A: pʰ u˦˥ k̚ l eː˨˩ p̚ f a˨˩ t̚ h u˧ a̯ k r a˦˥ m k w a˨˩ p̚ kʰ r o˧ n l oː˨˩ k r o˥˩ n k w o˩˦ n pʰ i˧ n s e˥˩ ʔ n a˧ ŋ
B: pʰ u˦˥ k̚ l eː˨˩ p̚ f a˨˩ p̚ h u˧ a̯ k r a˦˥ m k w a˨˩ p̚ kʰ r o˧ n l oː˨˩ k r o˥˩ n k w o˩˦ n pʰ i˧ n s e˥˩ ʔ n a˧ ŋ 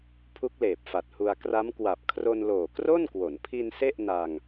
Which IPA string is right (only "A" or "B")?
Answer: A